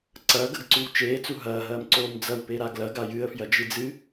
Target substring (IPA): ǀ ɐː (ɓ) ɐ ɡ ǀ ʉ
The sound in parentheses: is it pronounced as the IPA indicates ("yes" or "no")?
no